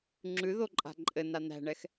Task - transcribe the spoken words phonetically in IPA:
ŋ͡ǁʉðoǃʼa̤ ǃʼɘna n̪æ̤ɳɛx

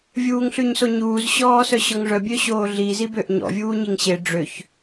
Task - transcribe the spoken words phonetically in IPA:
vʲuːŋɬʉɲsoɲuːz ɕɔːsœɕɔŋʐœ bʲøɕoːɮi zibøʔɲɔ̰ vʲuːɲiŋɕe ɖ͡ʐøç

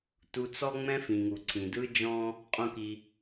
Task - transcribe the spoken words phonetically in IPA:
tu˨t͡sɔ˦ ŋ͡mɛ̃˦fĩ˩ŋu˩ǀʰĩ˩ dɯ˦d͡ʒɔ̃˦ | qʼõ˨ki˩

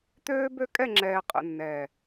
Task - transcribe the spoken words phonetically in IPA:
t̪øː˦bø˦ kʼɛ˦˨ŋ͡ǁɛː˨ qʼə̰˨nːɛː˨

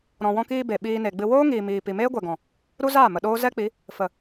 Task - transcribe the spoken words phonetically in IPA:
ɾɔ̃˨wɔ̃˧kiː˧ be˨ ɓiː˧ne˨ ɡ͡bɨ˧ woː˦ŋiː˨miː˨ pi˨meː˦ɡʷɛ˨ɡɔ̃˨ | ɾu˦zaː˦˨ mə˨ɗoː˦ zɛ˦k͡pi˨˦ | fə˨

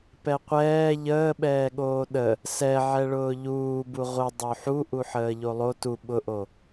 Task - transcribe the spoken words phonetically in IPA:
pɛqʷɛː ʎəːɓɛːɠoː ɗə | sɛʕɛɭʊː ʎuːbu ʁʷə dˤoħu ʔuħəːʎolˠo tu ɓʊʔo

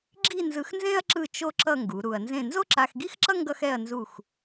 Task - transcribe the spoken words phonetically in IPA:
ɡ͡ǁi˥˧nzɯ˧xnzẽ˥ɐ̯ ǁɯ˥˧t͡ʃo˥ ǁʌ˥˧ŋɡu˩˧ ɾu˧ɐ̯ nzẽ˥˧ nzo˥ǁa˧xɡi˥xǁʌ˥ ŋɡʌ˥xɛ˥˧ɐ̯ nzu˥˧x

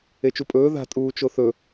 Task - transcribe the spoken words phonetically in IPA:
et͡ʃupʼɵː ða̤ tʼuːt͡ʃoθɵ

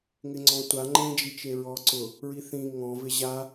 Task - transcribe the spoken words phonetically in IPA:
ŋɪŋ͡ǀɔ̃tʷa ŋ͡ǃẽd͡ʒit͡ʃe ɹɔǀʊ | ɹiθĩ ŋɔ̃vɪ ʑa

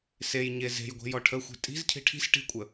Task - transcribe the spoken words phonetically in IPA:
sej ɲeze̤jɡʷe̤ jɔʈʰəxʷe̤ tʼi̤zcʰi̤ ʈʰi̤s ʈi̤kʷʼə

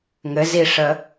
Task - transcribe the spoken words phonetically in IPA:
ŋɘ ziʂə

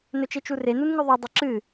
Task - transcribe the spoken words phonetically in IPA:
nɵt͡ʃet͡ʃure nunŋʉðˤo dˤɵǁɨ

